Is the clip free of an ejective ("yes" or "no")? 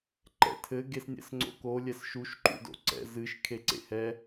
yes